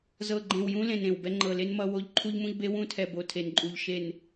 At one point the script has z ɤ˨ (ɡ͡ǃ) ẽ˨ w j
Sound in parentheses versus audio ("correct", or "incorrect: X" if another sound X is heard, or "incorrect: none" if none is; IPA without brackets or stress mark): correct